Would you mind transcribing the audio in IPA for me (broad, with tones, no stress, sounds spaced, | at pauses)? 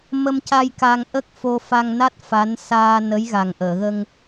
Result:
m ə˧ m c a˧ j k a˧ ŋ ʔ ə˦˥ k̚ f o˧ f a˧ ŋ n a˦˥ t̚ f a˧˥ n s aː˧ n ə˧˥ j ɣ a˨˩ ŋ ʔ əː˨˩˨ ɣ ə˧ ŋ